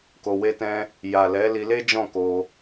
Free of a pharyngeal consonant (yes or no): yes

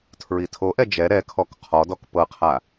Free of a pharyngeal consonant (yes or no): yes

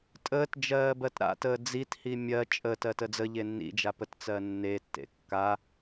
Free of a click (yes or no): yes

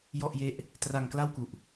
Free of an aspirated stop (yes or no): yes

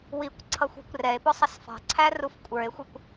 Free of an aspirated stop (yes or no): no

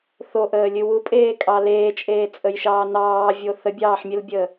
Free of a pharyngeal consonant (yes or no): no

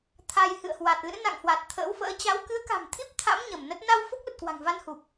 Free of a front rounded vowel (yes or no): yes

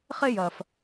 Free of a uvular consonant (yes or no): no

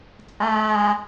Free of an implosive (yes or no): yes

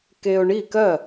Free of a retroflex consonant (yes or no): no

